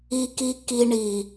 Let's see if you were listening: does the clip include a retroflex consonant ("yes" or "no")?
yes